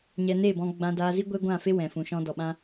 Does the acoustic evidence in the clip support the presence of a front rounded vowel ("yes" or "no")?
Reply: no